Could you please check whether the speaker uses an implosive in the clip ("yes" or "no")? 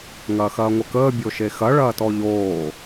no